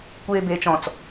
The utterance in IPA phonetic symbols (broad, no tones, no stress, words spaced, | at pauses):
kʷeːbeːt͡ʃɔ̃t͡s